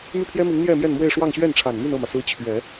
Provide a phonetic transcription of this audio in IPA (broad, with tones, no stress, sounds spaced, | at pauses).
m y˥˩ pʰ j ɛ˥ m i˧˥ ŋ n̪ j ɛ˥˧ m j ɛ˥˧ n m w e˥˧ ɪ̯ ʂ w ɑ˥˧ ŋ ɕ ɥ ɛ˥˩ n ʈ͡ʂʰ a˨˩ n m y˥˧ n ɤ˥˩ m ä˩ s ɹ̩˧˥ t͡ɕʰ ɥ ɛ˨˩˦